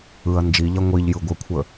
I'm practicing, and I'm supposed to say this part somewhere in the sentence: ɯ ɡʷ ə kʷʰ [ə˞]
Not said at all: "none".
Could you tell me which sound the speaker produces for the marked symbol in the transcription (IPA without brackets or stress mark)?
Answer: ə